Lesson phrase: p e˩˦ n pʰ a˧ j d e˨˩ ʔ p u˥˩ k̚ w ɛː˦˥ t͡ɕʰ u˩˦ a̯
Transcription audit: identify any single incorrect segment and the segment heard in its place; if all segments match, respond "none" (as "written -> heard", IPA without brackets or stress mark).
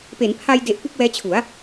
none